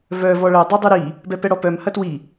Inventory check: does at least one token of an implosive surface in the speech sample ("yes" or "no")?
no